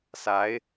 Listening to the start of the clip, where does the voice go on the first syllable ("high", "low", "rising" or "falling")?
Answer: rising